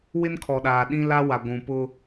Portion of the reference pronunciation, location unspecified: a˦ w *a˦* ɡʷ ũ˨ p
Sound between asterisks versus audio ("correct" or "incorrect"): incorrect